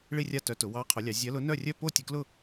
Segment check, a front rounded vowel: present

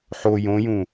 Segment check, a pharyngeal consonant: present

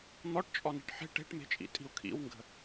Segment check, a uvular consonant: absent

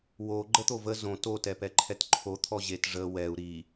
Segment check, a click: present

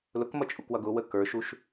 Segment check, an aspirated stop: absent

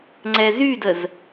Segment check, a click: present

